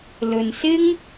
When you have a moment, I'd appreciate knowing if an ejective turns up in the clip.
no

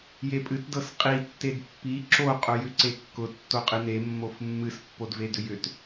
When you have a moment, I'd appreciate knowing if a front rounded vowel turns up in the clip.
yes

